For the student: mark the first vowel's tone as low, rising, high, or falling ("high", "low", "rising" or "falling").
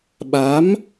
rising